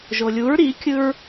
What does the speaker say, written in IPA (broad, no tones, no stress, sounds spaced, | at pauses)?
ʒ o lʲ u ɹ ɾ i kʲ ɯ ɹ